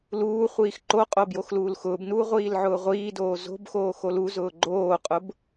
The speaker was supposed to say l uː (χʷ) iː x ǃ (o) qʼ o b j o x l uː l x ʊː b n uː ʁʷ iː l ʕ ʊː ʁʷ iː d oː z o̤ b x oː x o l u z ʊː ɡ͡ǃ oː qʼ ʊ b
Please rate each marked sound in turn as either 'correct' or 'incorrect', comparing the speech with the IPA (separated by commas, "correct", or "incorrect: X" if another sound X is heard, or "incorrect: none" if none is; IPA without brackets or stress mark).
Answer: correct, correct